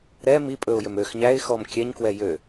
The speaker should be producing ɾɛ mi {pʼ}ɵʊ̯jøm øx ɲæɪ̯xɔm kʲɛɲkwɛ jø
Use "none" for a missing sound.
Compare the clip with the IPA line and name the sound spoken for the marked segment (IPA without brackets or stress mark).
pʼ